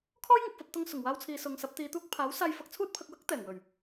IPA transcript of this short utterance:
kʰ ɔː˥ j ŋ ʊ˨ k̚ f ɐ˧ p̚ t̪ ʊ˧ ŋ s ʊ˨˩ ŋ w aː˧ w t͡sʰ iː˨ s ʊ˨ ŋ s ɐ˨˥ p̚ t̪ iː˨˧ t̪ uː˥ k̚ pʰ aː˨˥ w s aː˧ j f ɐ˧ k̚ t͡sʰ uː˥ t̚ pʰ ɐ˧ k̚ w ɐ˥ k̚ t̪ ɛː˨˩ ŋ w ɵ˨˩ ɥ

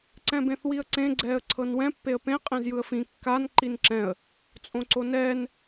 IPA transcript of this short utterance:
ǀ ɛ̃ b ẽ θ w i ə̯ ǀ ẽ ɡ͡ǀ ɛː ə̯ ǀʰ ɤ n w ɛ̃ pː e ə̯ p ẽ qʼ ẽ z j ɯ ə̯ f ĩ kː a n ǃ i n ǁ ɛ̃ ə̯ | t͡sʼ õ ǀ o n ɛː n

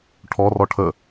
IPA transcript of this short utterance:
ʈʰ ɔ r ɔ ʈʰ ə

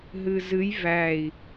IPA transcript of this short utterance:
ɦ ɨ z ɨ j v æ i̯

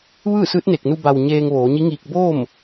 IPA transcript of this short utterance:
ʋ ɯː˥˨ s ɯː˧˥ t̚ n e˧˩ k̚ n u˧ b a˩ w ɲ eː˧ ŋ ʋ oː˩˧ ɲ i˧˥ ŋ iː˧ k̚ b o˥˨ m

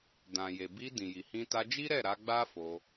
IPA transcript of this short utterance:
d ã˨ j e˨ b i˧ d ĩ˨ j i˨ h ĩ˧ t a˧ d͡ʒ i˦ ɾ ɛ˦˨ ɾ a˧ ɡ͡b a˦ f o˧

